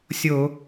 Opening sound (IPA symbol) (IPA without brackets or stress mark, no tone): sʲ